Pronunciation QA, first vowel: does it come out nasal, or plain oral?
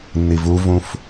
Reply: oral